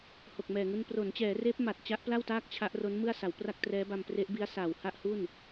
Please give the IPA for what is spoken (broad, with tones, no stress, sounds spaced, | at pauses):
h o˨˩ k̚ m ɛː˨˩ ŋ u˧ n p r o˩˦ n t͡ɕ ɛː˩˦ r eː˦˥ p̚ m a˨˩ t̚ t͡ɕ a˦˥ ʔ p l a˥˩ w t aː˥˩ k̚ t͡ɕʰ a˦˥ ʔ r o˦˥ n m ɯ˥˩ a̯ s a˩˦ w p r a˥˩ k̚ t r ɛː˦˥ b a˧ m p r e˦˥ ʔ b i˦˥ a̯ s aː˨˩ w h a˥˩ ʔ h u˥˩ n